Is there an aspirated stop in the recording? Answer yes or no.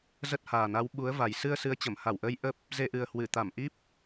no